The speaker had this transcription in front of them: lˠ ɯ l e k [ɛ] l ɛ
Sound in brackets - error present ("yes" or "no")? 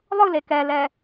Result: no